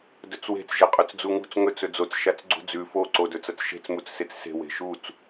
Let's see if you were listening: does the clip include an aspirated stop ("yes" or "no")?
no